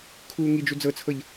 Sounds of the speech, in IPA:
kʰuːŋid͡ʒu d͡zɤt͡sʰɤʎ

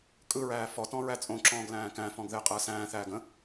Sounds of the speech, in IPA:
kʼɯɹæː fɔtɔ̃ ɹæt͡sʼõǁɔ̃ːɡ læ̃ːkæ̃fɔ̃ɡ ðɪːqʼəːsæ̃ːθæːɡ ə̃

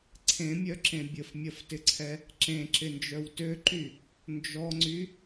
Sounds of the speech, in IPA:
ǀʰẽmʲœǁẽ bʲəfmʲɐftɪǀʰɛ | ǁẽǁɪnd͡ʒœw tøǃy | nd͡ʒɔŋ͡ǀy

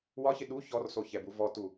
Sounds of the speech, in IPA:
wɒçɪ ɗu çɔrsoçɛbu vɔtu

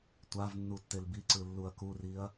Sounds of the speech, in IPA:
tʷav nːutːelbiǀɯ lːuɐ̯kuriɐ̯

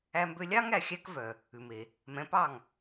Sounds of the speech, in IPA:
æ˧mbø˧lʲɑ˥ŋ æ˩xʲæ˥k vœ˩ | ʉ˩me˩ | mɛ̃˩˥pɑ˥˩ŋ

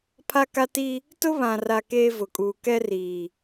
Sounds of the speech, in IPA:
pʰa˦ka˦ti˦ | tʊ˦βã˨ra˨ keː˦vʊ˨kʼuː˨ kɛ˦riː˨

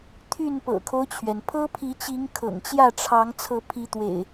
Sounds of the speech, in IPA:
t̪ʰy˥˨n pɤ̰˨˩kʰo˦ʊ̯t͡ɕʰɥɛ˩n pʰɤ˦pʰi˨˦t͡ɕi˨˦ŋ kʰɤ̰˨˩ŋt͡ɕjä˥˨ʈ͡ʂʰɑ˨˦ŋ t͡sʰɤ˨˦pʰi˨˦t̪wḛ˨˩ɪ̯

